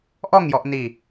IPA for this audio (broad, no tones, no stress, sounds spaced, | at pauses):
ʔ ɔ ŋ j ɔ ʔ n i